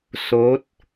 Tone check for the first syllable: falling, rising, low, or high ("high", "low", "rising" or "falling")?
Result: rising